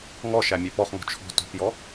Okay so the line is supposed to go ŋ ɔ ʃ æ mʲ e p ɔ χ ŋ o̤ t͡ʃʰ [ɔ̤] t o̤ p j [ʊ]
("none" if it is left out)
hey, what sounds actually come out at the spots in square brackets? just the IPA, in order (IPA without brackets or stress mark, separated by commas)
ɔ̤, ɔ